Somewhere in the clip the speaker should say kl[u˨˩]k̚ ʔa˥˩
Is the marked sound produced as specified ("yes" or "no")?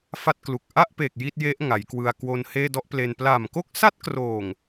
yes